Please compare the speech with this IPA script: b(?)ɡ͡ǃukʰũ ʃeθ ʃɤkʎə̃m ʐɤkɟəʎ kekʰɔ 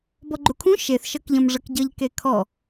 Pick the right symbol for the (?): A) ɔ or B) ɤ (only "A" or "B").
A